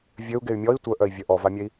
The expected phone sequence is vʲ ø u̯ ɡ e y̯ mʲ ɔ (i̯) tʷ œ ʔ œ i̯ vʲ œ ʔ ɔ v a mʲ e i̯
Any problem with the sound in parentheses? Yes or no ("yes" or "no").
no